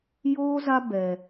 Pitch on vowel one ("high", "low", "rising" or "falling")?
high